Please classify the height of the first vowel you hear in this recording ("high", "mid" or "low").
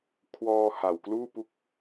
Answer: mid